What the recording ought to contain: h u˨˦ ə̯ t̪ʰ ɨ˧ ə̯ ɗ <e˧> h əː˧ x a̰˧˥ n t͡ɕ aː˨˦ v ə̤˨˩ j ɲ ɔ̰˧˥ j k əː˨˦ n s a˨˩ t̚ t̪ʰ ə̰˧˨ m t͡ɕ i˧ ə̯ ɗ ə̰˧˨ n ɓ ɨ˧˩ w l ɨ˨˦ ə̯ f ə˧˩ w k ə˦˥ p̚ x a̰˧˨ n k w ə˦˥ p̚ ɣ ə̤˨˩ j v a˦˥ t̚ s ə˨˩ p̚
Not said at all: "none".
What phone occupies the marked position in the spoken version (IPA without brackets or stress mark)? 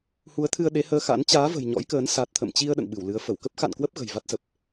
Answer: e˨˦